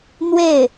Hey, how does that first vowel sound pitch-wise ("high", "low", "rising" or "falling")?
falling